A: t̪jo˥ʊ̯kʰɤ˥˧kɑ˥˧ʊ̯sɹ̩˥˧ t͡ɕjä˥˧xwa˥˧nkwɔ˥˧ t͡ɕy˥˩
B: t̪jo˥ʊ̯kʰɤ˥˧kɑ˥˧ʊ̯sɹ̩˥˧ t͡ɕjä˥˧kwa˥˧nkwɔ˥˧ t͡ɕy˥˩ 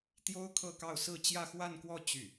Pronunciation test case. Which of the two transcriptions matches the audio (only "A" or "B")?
A